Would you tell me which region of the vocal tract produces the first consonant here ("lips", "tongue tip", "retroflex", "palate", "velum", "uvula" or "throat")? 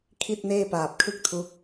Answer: velum